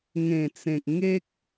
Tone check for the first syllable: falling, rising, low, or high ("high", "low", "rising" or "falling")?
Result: low